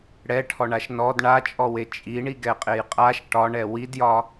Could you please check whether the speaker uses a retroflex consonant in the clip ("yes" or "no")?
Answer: yes